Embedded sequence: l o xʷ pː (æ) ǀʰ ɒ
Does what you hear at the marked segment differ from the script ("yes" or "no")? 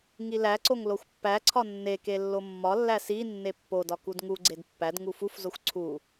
no